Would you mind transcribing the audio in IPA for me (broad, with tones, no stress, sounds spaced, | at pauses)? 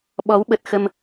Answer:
ɓ ɔ˨˦ w ɓ ə˨˩ t̚ x ə˧ m